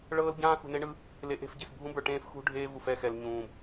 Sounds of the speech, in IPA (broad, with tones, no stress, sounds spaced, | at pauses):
ɭ ɤː˦ l ɟ ãː˦ x ṳ˨ n e˦ ɳ ɯ˦ | l e˨ ʔ e̤˦˨ f ɟ e̤˨ s bʱ ũ˦ b ə˞˨ ʈ ẽː˦ f x ṳ˦ ɖʱ eː˦ v u˨ f ɛ˦˨ x ɛ˨ l ɲ ũː˨ b